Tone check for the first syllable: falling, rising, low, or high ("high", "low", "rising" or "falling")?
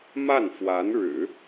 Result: falling